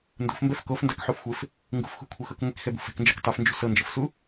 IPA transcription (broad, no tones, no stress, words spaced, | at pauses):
ndṳfmbɛf kofndakħufxʷef | ŋɡṳfxṳkʷʰexɤk ŋʷikxɛbṳ fɛ̤knd͡ʒɛk tˤɯfnd͡ʒṳ sɤnd͡ʒɤfsu